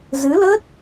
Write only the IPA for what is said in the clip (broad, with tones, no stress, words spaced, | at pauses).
zɨ˨˦lə˦˥t̚